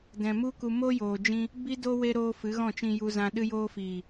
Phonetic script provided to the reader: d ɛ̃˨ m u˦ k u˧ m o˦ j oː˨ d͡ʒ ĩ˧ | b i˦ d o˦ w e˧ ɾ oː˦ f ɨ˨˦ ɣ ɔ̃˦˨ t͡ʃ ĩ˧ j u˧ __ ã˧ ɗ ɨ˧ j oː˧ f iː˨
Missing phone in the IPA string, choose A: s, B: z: B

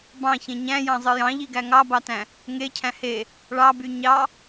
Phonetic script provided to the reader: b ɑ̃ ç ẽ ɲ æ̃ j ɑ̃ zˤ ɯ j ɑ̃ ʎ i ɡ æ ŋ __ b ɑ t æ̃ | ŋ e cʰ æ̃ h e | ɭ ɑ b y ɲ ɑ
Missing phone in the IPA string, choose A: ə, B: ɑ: B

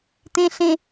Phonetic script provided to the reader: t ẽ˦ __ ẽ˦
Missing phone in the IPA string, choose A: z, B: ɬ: B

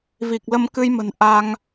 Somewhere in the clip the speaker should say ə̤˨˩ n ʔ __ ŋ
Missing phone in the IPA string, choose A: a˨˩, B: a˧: B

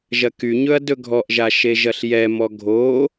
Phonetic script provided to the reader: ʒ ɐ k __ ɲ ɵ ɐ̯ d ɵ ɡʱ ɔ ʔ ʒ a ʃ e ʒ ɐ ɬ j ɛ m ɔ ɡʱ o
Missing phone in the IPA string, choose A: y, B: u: A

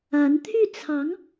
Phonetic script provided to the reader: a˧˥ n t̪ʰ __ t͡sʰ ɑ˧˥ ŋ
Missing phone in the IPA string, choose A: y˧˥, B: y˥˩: B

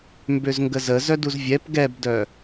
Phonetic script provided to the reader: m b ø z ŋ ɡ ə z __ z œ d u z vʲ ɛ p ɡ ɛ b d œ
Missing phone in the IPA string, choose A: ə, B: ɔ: A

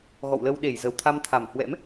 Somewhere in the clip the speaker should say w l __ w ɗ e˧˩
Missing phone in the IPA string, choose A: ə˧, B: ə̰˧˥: A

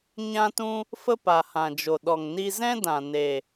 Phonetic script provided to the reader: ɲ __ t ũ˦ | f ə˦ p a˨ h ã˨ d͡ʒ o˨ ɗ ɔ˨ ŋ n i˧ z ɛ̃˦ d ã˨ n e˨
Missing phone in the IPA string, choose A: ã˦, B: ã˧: A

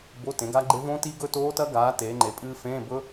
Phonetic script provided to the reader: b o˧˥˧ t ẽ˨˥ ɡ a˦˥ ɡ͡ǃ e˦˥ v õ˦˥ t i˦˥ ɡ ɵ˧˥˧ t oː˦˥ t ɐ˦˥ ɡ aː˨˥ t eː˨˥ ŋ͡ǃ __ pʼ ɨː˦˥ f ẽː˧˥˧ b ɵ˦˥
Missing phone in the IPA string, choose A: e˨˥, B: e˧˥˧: A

